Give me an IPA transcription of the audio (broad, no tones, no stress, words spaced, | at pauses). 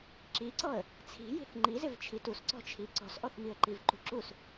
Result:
ǁiǀɔə̯ | t͡sʰi̤ji̤θ ŋ͡ǃizɪv t͡ʃʰitusǀɔ̤ t͡ʃʰiǀɔ̤sʔɔθ miə̯ǃivǃṳǁus